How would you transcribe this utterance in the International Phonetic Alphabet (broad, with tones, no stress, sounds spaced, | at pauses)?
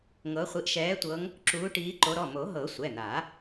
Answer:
ŋ ɤ˨˦ χʷ i˨˦ ʔ ʃ ɛː˨˦ tʷ ɤ˨˦ ŋ | ǁ uː˨˦ ʈ iː˨˦ ǃ o˨˦ ɾ ɔ˩˧˩ m o˨˩˦ ɦ ɤ˨˩˦ sʷ ɛ˩˧˩ n̪ a˨˩˦